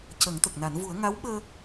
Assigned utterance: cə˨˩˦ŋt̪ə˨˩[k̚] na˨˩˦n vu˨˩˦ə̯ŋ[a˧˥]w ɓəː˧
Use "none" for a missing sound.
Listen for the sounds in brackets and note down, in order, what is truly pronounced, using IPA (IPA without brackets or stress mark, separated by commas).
k̚, a˧˥